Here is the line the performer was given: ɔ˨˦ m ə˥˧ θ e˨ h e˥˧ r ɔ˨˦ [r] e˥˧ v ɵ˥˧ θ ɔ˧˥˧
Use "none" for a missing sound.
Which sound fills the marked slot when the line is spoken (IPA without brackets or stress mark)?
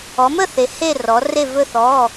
r